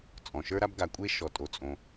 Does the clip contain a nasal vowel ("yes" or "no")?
yes